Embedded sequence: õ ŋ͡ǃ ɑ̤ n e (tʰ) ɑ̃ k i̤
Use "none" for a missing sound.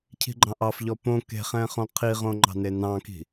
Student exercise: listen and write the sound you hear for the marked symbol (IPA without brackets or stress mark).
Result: n